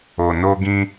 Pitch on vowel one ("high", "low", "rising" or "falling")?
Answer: low